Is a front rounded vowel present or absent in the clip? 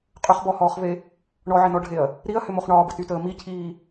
present